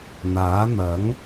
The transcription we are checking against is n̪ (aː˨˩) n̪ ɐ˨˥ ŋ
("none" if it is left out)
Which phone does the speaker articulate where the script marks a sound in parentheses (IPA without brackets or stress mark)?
aː˨˥